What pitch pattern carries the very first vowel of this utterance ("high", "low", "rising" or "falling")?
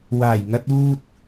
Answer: low